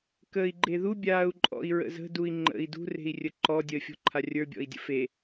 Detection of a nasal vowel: absent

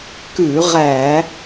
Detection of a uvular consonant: present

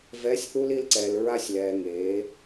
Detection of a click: present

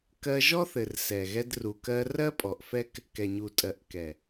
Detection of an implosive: absent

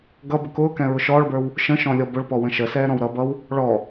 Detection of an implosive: absent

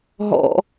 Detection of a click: absent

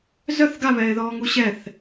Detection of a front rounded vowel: present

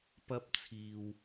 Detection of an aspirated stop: present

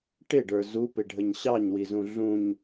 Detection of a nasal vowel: present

